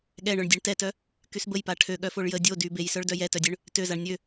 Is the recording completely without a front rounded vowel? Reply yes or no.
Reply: no